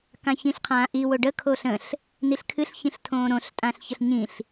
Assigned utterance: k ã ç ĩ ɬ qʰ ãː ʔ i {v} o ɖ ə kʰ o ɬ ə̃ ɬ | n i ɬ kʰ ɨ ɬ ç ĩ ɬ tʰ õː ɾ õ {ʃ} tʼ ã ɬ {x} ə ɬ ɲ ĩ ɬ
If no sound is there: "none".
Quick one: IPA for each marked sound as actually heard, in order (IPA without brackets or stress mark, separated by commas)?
w, ɬ, ç